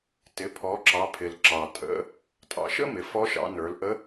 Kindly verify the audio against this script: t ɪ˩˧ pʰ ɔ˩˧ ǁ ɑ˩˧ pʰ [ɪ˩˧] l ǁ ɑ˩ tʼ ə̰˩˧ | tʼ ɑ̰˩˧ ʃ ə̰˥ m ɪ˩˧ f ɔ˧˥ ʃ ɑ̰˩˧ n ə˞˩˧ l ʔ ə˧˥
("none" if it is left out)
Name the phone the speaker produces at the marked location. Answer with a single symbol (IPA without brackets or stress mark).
ɪ˩